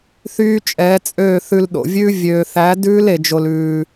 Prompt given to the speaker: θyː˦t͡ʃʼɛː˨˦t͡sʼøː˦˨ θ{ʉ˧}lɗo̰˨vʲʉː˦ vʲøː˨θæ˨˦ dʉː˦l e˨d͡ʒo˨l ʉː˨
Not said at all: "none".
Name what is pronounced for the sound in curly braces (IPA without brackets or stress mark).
ʉ˧